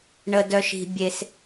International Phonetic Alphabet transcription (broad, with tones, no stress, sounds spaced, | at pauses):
ɳ ə˧ d œ˧ ʃ i̤˧ bʲ e˧ s